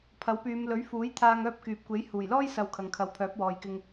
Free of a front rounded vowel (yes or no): no